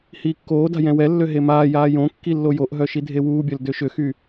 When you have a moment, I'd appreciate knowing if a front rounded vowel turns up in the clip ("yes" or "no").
yes